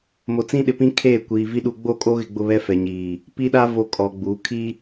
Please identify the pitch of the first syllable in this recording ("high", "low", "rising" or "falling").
low